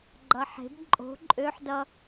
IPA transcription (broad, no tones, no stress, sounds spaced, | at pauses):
ɡ͡ǃ ʌ ħ e̤ b ǃʼ o̤ ǃʼ ø ħ d ʌ